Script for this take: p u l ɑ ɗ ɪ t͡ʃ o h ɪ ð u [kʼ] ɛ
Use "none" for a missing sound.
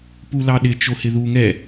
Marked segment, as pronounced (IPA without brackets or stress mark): ŋ